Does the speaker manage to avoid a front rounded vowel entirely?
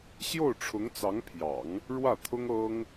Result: yes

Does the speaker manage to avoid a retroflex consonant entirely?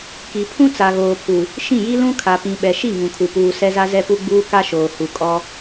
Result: yes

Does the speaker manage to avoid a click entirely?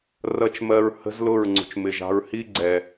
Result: no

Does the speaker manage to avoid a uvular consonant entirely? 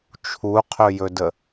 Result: no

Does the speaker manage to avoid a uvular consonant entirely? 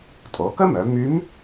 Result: yes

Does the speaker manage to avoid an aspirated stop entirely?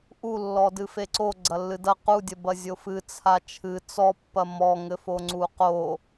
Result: no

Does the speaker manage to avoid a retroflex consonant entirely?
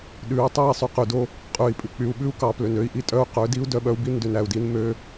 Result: yes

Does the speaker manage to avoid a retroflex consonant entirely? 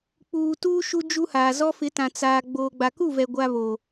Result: yes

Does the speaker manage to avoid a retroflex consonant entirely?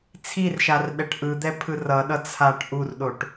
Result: no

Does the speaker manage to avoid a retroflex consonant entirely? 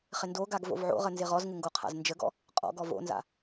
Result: yes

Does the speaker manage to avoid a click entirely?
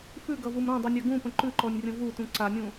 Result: no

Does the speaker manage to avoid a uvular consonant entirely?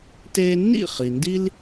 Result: no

